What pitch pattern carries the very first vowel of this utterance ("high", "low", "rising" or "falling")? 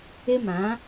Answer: high